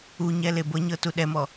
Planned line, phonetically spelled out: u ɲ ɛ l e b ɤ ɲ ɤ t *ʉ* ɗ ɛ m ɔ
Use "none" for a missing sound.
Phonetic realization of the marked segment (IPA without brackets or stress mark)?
u